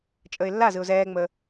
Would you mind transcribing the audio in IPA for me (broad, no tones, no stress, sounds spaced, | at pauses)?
t͡ʃʼ əː ɪ̯ lː a z ɯ ʊ̯ z ɛː ŋ͡m əː